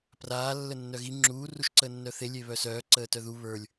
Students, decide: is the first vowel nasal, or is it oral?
oral